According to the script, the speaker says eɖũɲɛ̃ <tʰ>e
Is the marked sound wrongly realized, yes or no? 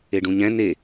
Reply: yes